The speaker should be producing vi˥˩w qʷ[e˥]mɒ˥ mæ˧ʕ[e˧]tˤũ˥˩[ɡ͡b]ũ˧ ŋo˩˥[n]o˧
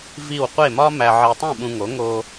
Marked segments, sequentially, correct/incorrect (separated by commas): incorrect, correct, incorrect, incorrect